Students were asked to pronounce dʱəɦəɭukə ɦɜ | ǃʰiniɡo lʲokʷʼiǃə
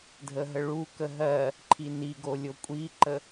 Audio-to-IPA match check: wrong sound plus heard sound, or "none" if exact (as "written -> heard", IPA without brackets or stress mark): none